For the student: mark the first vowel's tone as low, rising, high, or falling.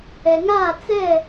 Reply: low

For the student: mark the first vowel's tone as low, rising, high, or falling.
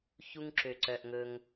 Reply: high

